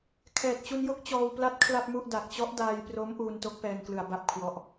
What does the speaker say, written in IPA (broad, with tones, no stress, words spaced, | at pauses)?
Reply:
kʰɛː˨˩t̚t͡ɕu˧njo˥˩k̚ t͡ɕɔː˧wpla˦˥t̚ kʰla˥˩p̚mu˥˩ʔ da˨˩k̚t͡ɕɔ˦˥ʔ daː˧jpro˦˥m ʔuː˧nto˦˥k̚pɛː˧ŋklɯ˩˦a̯ ba˦˥p̚kʰwɔ˦˥ʔ